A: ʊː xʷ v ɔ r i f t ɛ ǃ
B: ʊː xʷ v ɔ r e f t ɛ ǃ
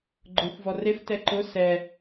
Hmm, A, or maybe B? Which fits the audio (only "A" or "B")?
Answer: B